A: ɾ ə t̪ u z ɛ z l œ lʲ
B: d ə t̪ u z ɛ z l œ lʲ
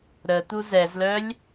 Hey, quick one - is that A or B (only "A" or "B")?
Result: A